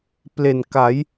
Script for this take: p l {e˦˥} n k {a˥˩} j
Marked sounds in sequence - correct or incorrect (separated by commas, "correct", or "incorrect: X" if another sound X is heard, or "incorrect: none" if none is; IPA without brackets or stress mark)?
incorrect: e˨˩, incorrect: a˩˦